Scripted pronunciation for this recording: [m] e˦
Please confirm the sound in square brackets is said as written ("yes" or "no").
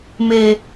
yes